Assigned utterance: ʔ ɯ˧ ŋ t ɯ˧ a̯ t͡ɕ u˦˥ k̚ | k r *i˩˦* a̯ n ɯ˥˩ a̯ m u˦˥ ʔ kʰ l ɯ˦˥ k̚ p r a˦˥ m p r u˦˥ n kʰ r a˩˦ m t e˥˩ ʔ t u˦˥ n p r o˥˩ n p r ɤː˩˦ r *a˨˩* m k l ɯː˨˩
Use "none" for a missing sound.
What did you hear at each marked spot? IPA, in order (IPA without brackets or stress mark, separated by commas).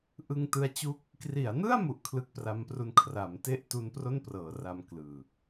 i˩˦, a˧